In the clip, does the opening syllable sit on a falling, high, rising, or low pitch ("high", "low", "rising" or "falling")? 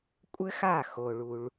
high